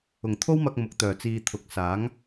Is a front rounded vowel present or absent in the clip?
present